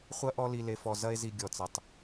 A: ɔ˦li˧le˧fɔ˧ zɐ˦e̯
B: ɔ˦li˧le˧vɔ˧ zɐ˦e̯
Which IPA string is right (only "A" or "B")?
A